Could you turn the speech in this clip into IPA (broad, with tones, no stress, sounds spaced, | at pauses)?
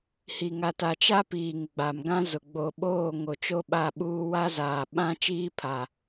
h i˨ ŋ a˨ t a˨ t͡ʃ a˦ p iː˨ ŋ ɡ͡b a˨ m ɡ ã˦ z ʊ˨ ɡ͡b o˨ ɓ oː˦˨ ŋ o˨ t͡ʃ o˦ ɓ a˦˨ ɓ uː˦ w a˦ z aː˨ ɓ ã˦ t͡ʃ iː˦ pʰ a˨